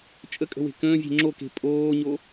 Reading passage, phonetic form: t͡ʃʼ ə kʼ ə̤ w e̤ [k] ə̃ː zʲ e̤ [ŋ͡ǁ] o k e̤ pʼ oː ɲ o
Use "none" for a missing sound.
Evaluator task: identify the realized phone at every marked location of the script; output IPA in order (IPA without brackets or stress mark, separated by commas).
k, ŋ͡ǁ